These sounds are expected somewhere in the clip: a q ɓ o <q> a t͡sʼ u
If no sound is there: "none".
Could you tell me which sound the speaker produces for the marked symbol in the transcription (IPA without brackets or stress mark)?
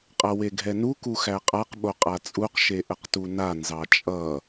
qʼ